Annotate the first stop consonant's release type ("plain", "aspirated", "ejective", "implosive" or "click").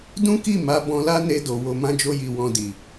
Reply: plain